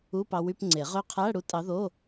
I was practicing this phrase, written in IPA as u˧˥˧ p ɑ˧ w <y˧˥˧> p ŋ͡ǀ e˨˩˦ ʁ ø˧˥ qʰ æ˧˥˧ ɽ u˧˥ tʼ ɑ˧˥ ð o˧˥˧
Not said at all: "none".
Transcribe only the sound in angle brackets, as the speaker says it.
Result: y˧˥˧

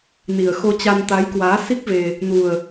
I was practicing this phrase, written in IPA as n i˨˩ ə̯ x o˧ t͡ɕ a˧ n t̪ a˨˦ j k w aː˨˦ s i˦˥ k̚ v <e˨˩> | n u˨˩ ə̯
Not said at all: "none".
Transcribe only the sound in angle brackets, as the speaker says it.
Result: e˧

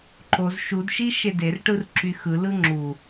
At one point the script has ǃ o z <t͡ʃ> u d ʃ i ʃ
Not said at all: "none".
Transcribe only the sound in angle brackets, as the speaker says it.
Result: ʃ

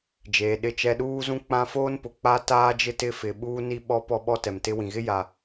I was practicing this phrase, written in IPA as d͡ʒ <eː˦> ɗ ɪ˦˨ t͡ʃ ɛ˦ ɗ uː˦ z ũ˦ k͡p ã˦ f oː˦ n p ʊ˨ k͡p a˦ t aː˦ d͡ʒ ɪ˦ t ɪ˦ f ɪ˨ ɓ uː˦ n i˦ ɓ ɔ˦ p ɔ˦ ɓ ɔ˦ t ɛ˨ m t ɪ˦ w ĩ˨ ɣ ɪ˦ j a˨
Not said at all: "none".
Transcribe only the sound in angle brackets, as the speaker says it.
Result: eː˨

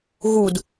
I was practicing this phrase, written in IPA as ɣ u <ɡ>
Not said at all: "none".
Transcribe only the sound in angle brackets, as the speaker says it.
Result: d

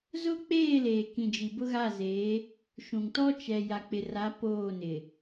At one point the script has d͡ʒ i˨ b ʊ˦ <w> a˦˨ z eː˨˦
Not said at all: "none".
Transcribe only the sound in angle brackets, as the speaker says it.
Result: ɣ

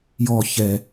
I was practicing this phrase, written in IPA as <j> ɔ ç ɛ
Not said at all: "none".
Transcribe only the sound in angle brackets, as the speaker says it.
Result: j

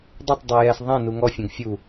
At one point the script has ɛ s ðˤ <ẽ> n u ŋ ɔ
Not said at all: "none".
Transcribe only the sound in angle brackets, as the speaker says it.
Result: ɛ̃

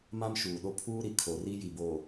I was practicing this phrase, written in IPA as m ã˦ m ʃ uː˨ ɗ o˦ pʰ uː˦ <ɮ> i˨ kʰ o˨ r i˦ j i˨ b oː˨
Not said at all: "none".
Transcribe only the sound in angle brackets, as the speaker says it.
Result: ɾ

